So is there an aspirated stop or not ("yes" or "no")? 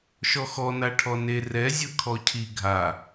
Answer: yes